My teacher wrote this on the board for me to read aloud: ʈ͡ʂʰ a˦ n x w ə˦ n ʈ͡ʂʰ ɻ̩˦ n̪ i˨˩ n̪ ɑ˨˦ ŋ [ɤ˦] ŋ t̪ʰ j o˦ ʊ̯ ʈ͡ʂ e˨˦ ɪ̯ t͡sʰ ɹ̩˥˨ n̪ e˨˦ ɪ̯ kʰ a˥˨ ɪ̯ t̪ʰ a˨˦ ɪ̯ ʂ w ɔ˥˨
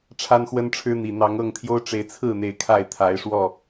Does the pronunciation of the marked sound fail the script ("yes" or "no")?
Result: yes